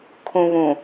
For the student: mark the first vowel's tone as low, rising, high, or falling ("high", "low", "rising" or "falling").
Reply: low